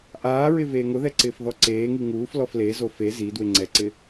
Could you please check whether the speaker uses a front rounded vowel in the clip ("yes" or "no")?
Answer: no